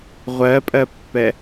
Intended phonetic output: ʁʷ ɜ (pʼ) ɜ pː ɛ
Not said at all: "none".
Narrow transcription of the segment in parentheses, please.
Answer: pʼ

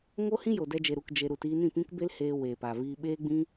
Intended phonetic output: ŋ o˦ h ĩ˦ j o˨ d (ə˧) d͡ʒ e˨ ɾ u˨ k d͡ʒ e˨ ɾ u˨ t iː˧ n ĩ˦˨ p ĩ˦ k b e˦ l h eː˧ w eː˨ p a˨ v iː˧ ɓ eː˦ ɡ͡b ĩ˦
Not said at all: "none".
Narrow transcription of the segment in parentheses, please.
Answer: ɛ˧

